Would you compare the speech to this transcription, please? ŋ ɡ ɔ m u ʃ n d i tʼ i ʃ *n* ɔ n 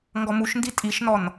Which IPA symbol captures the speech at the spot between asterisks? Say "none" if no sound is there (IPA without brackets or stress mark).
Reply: n